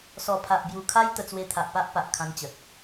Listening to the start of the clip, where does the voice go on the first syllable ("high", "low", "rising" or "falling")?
low